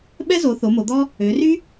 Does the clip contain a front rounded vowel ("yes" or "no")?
yes